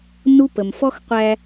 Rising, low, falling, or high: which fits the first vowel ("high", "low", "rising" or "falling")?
high